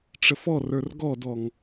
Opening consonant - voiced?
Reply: no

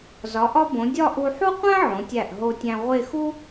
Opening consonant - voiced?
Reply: yes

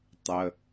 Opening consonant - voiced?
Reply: no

